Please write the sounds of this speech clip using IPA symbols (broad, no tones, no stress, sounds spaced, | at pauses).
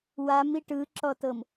w a m i ʈ ɯ ǁ ɔ t ɤ m